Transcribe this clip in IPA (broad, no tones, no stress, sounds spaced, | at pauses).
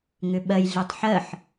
ŋ ʏ ɓ ɜ j ɮ e tˤ ħ ɜ ħ